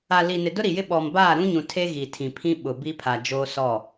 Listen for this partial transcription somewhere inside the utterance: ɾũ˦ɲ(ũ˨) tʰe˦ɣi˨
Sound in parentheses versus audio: correct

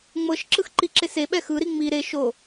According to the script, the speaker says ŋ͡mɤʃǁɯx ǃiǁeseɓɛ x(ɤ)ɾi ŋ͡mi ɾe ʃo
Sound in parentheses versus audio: incorrect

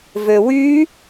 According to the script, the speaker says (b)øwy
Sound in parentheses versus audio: incorrect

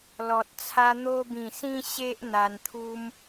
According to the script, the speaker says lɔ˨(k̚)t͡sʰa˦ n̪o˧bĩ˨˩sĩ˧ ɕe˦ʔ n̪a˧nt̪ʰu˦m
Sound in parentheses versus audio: incorrect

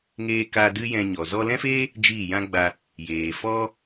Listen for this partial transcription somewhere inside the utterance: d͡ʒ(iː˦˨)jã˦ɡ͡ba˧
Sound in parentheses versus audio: correct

